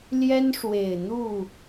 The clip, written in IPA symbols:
ljɛ˦nʂwe˨˩ɪ̯n̪u˥˨

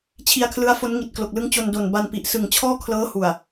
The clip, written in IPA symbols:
t͡ɕʰi˧a̯kʰlɯ˦˥a̯fo˦˥n ŋi˨˩t̚klo˨˩k̚lɯ˦˥ŋ t͡ɕo˧ndo˨˩n ba˧npi˨˩ʔ sɯ˨˩ŋt͡ɕʰɔː˥˩kʰlɤː˦˥hu˨˩a̯

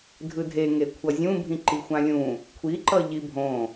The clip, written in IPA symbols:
dʱɯdʱe ŋekʷʰʌzʲũbʱĩ ǃixʷãlʲũ | kʷʰiǃʌ ʎibʱõ

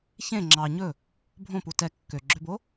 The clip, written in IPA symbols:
çẽ ŋ͡ǁɑ ɲɵ | bʱõpu tɛ kːøɡ͡ǁøbo

